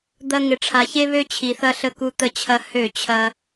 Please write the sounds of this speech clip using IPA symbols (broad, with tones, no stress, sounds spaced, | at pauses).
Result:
d̪ ɐ˦ ŋ ɪ˨ ʈ͡ʂʰ a˨ ç e˦ β ø˦ t͡ɕʰ i˨ θ ɐ˦ ɬ ə˦ k u˦ t̪ ə˦ t͡ɕʰ ɐ˦ h ø˦˨ t͡ɕʰ ɐ˦